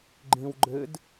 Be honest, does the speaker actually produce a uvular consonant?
no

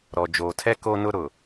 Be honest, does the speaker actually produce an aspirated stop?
yes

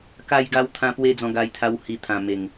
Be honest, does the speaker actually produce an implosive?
no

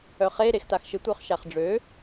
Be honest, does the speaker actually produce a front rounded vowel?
yes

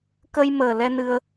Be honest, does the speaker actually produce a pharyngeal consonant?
no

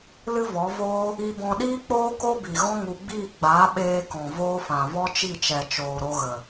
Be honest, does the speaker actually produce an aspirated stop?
no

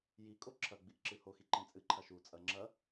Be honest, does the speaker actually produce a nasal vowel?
yes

